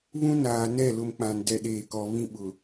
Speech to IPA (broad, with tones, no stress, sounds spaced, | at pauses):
β ũ˦ n aː˨ n ɛ˦˨ l ʊ˦ m k͡p ã˨ n d ɛ˦ ɗ eː˨ k ɔ˨ β ĩ˦ ɓ ʊ˨